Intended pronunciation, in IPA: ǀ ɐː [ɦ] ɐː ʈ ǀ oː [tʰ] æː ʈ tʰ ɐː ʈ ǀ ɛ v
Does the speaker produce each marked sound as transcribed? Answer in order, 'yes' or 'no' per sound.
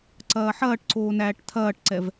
no, no

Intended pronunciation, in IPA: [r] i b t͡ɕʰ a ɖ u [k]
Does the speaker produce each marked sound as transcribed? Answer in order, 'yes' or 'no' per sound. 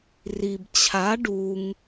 yes, no

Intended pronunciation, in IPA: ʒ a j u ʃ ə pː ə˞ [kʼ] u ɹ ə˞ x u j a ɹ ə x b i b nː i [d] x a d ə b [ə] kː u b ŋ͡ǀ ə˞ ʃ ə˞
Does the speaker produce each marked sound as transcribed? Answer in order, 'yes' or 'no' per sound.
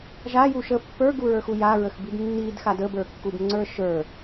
no, yes, no

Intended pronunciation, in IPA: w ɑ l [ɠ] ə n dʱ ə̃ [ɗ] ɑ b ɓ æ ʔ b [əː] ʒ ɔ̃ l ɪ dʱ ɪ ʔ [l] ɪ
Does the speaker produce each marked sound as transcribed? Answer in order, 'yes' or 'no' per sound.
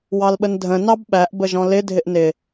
no, no, no, no

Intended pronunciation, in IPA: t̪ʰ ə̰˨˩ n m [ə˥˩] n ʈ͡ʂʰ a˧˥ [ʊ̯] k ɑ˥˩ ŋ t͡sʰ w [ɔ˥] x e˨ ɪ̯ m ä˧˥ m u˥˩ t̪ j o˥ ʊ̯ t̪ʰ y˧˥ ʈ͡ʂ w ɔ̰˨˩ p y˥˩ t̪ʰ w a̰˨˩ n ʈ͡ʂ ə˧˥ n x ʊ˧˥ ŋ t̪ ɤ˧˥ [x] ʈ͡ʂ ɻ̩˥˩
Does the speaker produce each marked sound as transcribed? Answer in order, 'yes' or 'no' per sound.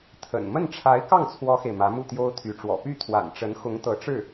yes, no, yes, no

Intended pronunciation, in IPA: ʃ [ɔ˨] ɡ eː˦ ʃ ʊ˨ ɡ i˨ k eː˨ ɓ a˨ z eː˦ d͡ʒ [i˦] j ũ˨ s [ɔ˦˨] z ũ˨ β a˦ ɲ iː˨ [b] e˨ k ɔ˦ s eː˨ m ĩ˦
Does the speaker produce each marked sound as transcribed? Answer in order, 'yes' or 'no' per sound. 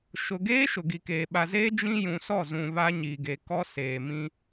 no, no, yes, no

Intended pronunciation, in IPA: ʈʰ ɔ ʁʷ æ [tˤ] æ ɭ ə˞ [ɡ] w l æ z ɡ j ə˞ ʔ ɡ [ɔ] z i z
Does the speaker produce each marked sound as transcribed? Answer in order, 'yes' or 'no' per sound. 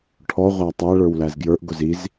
yes, no, no

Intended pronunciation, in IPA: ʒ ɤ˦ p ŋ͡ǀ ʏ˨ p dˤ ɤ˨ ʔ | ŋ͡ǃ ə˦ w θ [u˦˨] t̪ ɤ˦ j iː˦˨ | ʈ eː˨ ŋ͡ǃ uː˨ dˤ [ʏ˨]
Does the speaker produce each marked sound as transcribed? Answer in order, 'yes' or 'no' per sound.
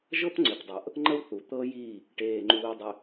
no, yes

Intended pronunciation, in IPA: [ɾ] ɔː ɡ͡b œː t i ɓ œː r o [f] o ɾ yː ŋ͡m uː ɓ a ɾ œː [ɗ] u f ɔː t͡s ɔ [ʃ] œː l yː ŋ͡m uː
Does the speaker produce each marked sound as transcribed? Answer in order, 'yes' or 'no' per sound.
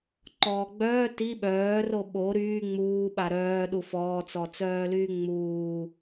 no, no, yes, no

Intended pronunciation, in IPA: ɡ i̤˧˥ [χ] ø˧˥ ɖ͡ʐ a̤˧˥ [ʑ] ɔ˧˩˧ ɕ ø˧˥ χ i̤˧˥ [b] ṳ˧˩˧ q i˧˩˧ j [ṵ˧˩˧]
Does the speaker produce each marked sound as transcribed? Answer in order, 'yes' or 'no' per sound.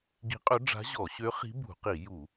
no, yes, yes, no

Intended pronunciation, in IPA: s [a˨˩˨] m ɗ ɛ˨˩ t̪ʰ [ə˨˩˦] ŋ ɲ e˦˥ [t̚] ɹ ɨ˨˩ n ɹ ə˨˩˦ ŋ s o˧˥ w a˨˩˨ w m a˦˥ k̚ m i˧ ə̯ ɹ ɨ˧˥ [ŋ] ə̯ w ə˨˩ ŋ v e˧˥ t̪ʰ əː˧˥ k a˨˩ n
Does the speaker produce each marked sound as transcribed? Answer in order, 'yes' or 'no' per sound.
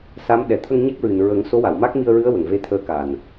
no, no, no, no

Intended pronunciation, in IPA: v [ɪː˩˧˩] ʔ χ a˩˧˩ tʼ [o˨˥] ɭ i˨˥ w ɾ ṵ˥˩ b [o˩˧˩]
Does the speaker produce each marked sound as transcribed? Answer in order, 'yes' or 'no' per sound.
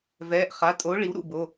no, yes, yes

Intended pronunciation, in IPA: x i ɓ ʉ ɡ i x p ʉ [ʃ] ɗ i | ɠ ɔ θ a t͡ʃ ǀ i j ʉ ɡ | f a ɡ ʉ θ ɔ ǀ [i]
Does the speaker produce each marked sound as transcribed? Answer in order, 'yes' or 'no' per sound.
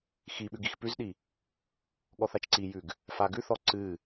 no, no

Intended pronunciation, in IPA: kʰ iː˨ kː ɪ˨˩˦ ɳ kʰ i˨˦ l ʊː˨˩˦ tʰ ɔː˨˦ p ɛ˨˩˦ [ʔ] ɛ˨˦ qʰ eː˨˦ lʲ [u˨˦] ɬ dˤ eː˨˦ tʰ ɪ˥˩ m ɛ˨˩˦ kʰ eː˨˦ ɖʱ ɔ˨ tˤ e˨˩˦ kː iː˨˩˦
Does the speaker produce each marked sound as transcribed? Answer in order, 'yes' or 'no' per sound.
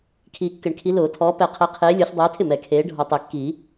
no, no

